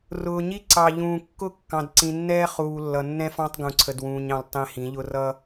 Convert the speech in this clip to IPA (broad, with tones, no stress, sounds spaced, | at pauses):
r ʊː˨ ɲ i˦ ǀ ɑ˨ ʎ ũː˨ kː ʊ˦˨ kː ɑ̃˨ d ǀ ĩ˨ nː ɛː˦ χ uː˨ lː ʌ˨ nː ɛ̃˦ f ɑ̃˦ tˤ ɡ ũ˨ ǀʰ ə˨ d w ũː˨ ɲ ɑ̃˨ l tˤ ɛ̃˦ h ĩ˨˦ ʎ ʊ˦ r ʌ˦